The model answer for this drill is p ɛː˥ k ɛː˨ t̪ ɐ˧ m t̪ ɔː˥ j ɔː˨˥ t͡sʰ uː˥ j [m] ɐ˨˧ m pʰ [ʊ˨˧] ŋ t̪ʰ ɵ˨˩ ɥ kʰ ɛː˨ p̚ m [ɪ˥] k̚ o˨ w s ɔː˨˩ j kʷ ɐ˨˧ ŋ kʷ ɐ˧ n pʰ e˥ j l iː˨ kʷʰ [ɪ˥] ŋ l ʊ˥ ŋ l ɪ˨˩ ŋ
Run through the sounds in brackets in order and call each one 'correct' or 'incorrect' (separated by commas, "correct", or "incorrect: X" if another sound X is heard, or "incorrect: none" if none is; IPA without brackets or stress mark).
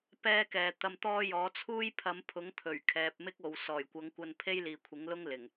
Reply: incorrect: pʰ, incorrect: ʊ˨˥, correct, incorrect: ɪ˨˥